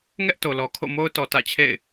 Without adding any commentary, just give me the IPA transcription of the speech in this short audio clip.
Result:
ŋ ɛ˦ ʔ t o˨ l ɔ˨ kʰ o̰˦˨ m o˦ ʊ̯ t ɔ˨ t ä̰˦˨ t͡ɕʰ ḛ˦˨ ɪ̯

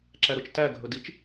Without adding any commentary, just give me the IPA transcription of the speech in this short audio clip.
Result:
ǁ æ ɾ ʊ t͡ʃ t æ ɡʱ ɵ d i t͡ʃ

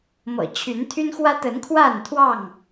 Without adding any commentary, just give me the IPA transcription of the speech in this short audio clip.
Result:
m ɤ̰˨˩ t͡ɕʰ y˨˦ n t̪ʰ y˦ n x w ä˦ t̪ ə˨˦ n kʰ w a˥˨ n t̪ʰ w ɑ˥˨ ŋ

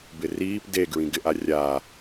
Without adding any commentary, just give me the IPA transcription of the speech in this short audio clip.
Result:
b ɪ r iː p d e ɡ ɹ ĩ ɡ ɪ ʔ a rʲ a

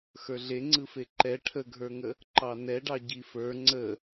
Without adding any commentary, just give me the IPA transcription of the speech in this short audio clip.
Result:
x ə˞ ɮ e ŋ͡ǀ ɯ f e ǃ ɛ ʈʰ ə ɡʱ ə˞ ŋ ə | ǃ ɑ n ɛ ɖ ɑ ɟ i f ə˞ ŋ͡ǀ ə

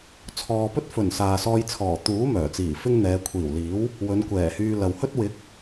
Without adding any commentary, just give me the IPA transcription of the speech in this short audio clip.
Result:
t͡sʰ ɔː˨ p ɵ˥ t̚ f ɵ˨˩ n s aː˨ s ɔː˧ j t͡sʰ ɔː˨˩ t̪ uː˨˥ m œː˨˩ t͡s iː˨˩ f ɪ˥ ŋ n̪ ɛː˨˧ kʷʰ iː˨˩ w l iː˨˥ w | w ɵ˨˧ n kʷ ɛː˨˩ h yː˧ l ɐ˨ w h ɵ˥ t̚ w ɪ˨˥ k̚

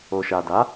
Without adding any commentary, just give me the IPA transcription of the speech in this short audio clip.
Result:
o˨ ʃ a˨ d a˨˦

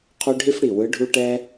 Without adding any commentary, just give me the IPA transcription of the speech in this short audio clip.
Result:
qʰ u˥ ɖʱ i˥ f ɽ i˧˩ w ɯ˧˥ ɖʱ u˥ ʈ ɛ˥

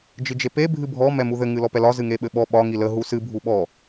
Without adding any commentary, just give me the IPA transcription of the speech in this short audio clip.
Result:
d͡ʒ ɨ d͡ʒ e p e bʱ ɨ bʱ ɔ m ɛ m u ð ɘ ŋ ɨ l ɔ p ɛ l ɒ z ɨ ŋ e ɓ ɘ ɓ ɔ ɓ ɒ ŋ i l ə ɦ u s ɨ bʱ u ɓ ɔ

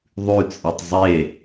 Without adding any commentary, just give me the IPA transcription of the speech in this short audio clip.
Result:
ðˤ ʉ t͡sʼ ɨ tˤ zˤ e

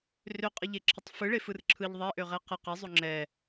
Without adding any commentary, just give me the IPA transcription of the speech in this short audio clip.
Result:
r ø qʼ ə ʎ e ǁʰ ə tˤ f ɯ ɭ e f ɯ r ǁʰ ɯ ʎ ðˤ ɛ ʔ ø ʁ ɛ q ə q ɛ zˤ o ŋ͡ǁ ɛ

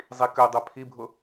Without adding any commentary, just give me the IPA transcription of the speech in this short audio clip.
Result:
zˤ i k ø dˤ ø pʰ i bʱ ʊ

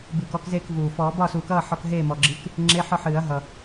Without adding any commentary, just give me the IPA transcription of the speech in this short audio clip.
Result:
b ɨː˨˩ k ɔ˧ k z eː˥˩ k v uː˨˩ f ɔː˨˩˦ b ɒ˥˩ s uː˨˩˦ k ʌː˥˩ ħ ɔ˧ k ɦ eː˥˩ m ɔ˨˩ ɡ͡ǁ ɨ˧˥˧ k | ŋ͡ǁ e˧˥˧ ħ ɔ˥˩ ħ ɨː˨˩˦ ɐ̯ ɦ ʌ˨˩

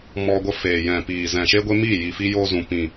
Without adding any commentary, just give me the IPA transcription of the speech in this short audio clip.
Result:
m ɔ˧ ɡʷ ə˧ f eː˨ j ɛ̃˨ p iː˨ z ɛ̃˨ ʃ e˦ ɡʷ e˦ m iː˦˨ j i˨ f i˧ j oː˧ z ũ˨ p ĩ˨

